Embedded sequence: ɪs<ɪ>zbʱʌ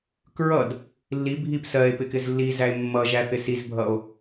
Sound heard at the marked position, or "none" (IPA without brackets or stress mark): i